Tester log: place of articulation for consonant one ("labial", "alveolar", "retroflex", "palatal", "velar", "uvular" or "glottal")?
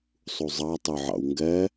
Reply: alveolar